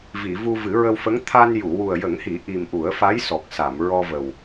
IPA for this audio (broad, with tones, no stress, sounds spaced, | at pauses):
v i˨˩˨ v u˧ v ɨ˨˩˦ ɹ ə˧ w f ə˧˥ ŋ t̪ʰ a˧ n j u˨˩˨ w u˨˩ ə̯ j ə˨˩˦ ŋ h i˨˩˦ ʔ i˨˩ m ʔ u˨˩˦ ə̯ f a˧˥ j s ɔ˨˩ k̚ s a˨˩˨ m ɹ ɔ˧ v ə˨˩ w